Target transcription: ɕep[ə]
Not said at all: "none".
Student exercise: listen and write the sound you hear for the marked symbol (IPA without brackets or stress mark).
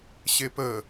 ə